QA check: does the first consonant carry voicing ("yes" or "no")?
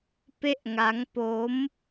no